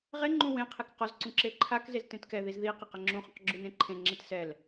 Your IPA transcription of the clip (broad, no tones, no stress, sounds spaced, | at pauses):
ʁ e ŋ͡ǃ ũ w ẽ qʰ e k q ɔ z ǀ ũ ǁ e ǃʰ a k z e z t ẽ t k ɛ ð i z ð i q i q ɛ ŋ͡ǁ ũ χ ũ q ɡ͡ǁ u n ẽ ǃʰ ẽ ŋ͡ǁ e t s ɛ l